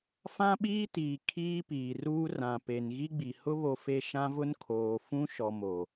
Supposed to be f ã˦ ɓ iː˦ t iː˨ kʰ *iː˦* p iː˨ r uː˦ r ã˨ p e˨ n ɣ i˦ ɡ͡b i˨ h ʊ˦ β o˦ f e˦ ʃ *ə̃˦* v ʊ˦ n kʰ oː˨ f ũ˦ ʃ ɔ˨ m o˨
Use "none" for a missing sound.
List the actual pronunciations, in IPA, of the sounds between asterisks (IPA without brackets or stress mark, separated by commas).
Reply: iː˦, ã˦